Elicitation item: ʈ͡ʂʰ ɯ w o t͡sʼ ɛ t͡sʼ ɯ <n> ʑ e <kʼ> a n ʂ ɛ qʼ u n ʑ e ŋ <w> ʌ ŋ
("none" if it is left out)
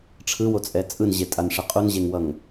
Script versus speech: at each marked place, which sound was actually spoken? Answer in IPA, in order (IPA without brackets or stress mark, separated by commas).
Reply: n, tʼ, w